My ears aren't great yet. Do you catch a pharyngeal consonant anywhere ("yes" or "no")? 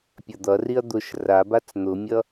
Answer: no